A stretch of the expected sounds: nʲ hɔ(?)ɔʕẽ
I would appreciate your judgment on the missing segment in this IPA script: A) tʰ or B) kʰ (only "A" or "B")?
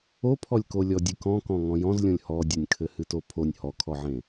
B